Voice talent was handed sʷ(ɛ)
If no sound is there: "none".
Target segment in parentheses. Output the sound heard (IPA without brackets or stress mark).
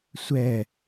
ɛ